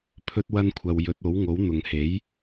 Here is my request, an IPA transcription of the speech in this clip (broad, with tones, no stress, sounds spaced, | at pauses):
pʰ ɵ˥ t̚ w ɐ˥ n kʷʰ ɐ˧ w j ɵ˨˥ t̚ o˨˥ w ŋ o˨˥ w n̪ ʊ˨ ŋ h e˨˥ j